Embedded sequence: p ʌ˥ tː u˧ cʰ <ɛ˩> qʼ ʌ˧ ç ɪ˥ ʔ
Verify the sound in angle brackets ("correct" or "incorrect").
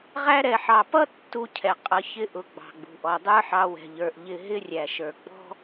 correct